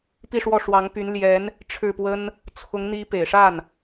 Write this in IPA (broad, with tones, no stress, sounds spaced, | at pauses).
p i˥˧ ʂ w ɔ˥˩ ʂ w ɑ˧˥ ŋ p y˧˥ n l j ɛ˧˥ n | ʈ͡ʂʰ ɻ̩˥˩ p w ə˥ n | t͡sʰ ʊ˧˥ ŋ n̪ i˧˥ p e˨˩ ɪ̯ ʂ a˥˩ n